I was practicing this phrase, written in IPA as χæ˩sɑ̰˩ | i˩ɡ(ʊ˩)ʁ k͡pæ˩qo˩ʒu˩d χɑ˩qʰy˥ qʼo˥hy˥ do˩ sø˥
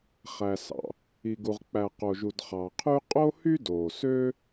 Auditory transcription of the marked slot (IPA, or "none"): u˩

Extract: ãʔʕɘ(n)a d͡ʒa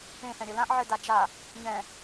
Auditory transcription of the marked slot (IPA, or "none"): d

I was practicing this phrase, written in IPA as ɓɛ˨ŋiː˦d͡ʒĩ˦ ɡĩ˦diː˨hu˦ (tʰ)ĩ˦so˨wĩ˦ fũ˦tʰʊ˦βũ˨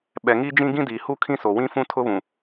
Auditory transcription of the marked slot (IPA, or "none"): kʰ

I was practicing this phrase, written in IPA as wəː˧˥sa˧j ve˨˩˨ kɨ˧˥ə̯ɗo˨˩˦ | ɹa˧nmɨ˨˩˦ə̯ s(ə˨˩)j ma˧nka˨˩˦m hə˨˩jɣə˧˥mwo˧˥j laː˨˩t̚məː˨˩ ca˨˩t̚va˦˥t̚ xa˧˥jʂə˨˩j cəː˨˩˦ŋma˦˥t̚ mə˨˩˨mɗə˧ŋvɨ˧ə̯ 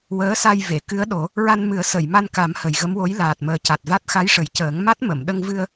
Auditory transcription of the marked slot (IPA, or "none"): ə˨˩˨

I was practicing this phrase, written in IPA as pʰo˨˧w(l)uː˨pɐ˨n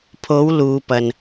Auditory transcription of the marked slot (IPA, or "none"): l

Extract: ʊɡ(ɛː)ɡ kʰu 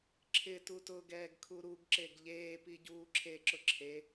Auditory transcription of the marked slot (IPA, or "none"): ɛː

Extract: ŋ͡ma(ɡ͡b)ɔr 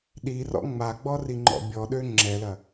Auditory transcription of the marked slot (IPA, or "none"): ɡ͡b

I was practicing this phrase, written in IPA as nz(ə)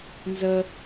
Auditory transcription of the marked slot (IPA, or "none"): ə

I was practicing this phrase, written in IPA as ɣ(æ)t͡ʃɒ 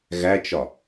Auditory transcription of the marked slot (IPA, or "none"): æ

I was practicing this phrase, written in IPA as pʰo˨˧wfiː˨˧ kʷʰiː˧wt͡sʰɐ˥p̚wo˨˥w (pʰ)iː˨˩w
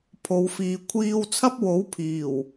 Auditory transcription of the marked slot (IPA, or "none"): pʰ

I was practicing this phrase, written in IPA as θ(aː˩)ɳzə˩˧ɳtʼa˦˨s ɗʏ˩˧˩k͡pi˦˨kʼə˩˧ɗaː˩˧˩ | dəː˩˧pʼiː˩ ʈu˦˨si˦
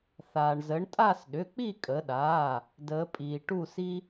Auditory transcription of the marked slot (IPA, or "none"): aː˩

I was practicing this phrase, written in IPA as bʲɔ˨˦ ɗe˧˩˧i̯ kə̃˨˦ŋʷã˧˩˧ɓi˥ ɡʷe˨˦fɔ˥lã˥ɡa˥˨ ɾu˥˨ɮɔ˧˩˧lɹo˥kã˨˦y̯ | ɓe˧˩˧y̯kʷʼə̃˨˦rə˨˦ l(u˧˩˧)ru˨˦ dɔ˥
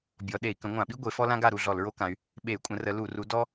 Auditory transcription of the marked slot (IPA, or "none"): u˧˩˧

